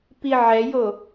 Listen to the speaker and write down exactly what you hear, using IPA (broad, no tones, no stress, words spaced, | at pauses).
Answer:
piʕɛjo